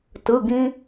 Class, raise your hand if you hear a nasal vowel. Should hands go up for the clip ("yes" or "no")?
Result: yes